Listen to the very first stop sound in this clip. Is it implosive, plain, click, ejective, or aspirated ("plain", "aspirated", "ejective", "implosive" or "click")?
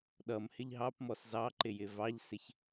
implosive